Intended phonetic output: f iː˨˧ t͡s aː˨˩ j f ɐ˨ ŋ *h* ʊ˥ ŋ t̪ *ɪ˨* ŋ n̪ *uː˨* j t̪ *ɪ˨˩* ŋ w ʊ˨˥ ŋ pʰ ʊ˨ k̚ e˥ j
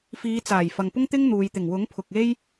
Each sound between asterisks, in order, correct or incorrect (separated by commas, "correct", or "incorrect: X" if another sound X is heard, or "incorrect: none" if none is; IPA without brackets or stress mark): incorrect: p, incorrect: ɪ˥, correct, correct